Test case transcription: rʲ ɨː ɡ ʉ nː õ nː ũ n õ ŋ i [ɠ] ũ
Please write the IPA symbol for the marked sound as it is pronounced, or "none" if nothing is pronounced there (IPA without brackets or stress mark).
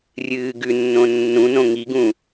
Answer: ɡ